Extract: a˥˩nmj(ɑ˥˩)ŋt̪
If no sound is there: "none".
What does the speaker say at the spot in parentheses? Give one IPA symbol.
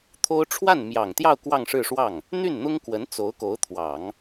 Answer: ɑ˨˩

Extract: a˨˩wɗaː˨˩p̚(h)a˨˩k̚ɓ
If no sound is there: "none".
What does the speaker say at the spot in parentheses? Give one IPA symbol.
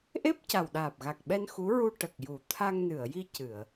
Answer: ɣ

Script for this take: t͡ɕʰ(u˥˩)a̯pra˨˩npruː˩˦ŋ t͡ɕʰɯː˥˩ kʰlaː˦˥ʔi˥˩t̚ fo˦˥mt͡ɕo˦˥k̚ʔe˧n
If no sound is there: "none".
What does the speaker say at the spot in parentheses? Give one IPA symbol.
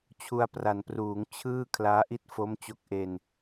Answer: u˧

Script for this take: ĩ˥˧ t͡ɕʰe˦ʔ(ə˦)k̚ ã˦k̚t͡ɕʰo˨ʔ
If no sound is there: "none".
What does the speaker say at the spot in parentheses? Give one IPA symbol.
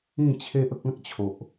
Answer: ə˦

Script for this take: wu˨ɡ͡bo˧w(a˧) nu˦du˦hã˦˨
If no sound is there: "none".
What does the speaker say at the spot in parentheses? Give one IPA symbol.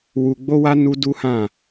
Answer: a˧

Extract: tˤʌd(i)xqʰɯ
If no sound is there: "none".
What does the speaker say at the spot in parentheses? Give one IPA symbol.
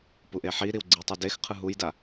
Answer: e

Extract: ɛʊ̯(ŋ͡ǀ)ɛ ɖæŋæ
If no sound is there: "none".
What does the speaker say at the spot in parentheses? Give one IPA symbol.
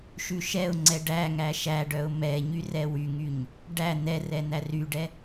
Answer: ŋ͡ǀ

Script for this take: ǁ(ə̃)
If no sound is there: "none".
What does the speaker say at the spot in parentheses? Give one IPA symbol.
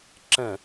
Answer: ə̃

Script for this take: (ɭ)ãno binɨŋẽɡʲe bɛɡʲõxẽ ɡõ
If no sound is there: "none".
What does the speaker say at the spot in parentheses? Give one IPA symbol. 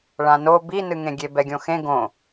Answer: ɭ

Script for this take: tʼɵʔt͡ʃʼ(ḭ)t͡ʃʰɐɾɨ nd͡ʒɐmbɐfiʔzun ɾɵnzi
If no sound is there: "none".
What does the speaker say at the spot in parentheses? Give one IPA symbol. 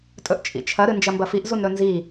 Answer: ḭ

